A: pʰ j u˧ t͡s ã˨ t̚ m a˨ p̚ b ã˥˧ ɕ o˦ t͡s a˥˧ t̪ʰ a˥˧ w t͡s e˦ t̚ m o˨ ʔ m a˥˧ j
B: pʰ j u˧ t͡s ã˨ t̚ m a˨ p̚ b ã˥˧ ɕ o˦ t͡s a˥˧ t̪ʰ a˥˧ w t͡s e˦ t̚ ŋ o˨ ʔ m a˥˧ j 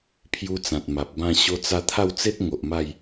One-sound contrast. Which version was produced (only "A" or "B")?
B